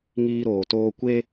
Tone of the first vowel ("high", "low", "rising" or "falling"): high